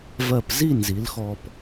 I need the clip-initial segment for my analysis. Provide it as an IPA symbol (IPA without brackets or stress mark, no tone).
v